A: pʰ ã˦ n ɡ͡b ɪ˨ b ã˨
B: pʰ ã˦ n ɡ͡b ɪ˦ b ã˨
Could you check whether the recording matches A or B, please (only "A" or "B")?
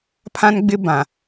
B